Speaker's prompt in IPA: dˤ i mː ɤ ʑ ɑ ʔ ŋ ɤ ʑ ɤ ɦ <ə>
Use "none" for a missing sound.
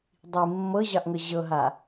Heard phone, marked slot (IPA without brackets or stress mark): a